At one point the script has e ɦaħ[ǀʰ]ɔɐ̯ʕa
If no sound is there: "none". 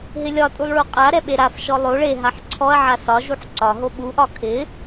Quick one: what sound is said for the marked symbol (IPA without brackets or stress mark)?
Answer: ǀʰ